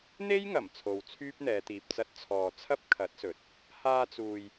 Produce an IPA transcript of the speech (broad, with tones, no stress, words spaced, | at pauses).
n̪e˥jŋɐ˨˩m t͡sʰo˨wt͡sʰyː˥p̚n̪ɛː˨˧t̪iː˨p̚ t͡sɐ˧t̚t͡sʰɔː˨t͡sʰɐ˥p̚ kʰɐ˨˥t̚sɵ˨t̚ | haː˧t͡suː˨j